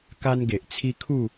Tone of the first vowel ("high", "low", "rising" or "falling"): high